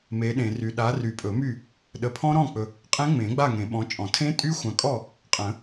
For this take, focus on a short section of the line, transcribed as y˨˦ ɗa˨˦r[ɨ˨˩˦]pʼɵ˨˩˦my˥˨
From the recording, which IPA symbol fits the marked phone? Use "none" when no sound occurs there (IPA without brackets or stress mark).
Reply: y˨˩˦